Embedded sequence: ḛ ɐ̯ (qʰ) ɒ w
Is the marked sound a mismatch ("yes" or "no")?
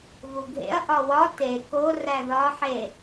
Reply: yes